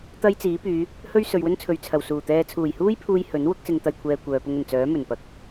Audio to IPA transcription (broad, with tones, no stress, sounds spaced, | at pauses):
t̪ ɐ˥ j t͡s iː˨˥ p yː˨˧ | h ɵ˥ ɥ s ɵ˨ ɥ w ɵ˥ n t͡sʰ ɵ˨ ɥ t͡sʰ ɐ˨˩ w s uː˨˩ t̪ ɛː˧ t͡sʰ uː˨˩ j h uː˥ j pʰ uː˧ j h ɵ˨˥ n w ʊ˥ k̚ s ɪ˧ ŋ t̪ ɐ˨ j kʷʰ ɛː˨ kʷ œː˨ p ʊ˧ ŋ ɵ˨˩ n t͡s œː˨˥ m ɵ˨˩ n p ɐ˨˥ k̚